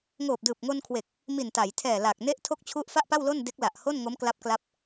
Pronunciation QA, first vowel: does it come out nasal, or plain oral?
oral